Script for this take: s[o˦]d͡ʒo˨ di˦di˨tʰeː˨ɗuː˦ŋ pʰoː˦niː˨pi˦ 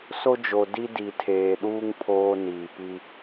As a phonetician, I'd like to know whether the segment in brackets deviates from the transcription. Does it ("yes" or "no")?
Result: no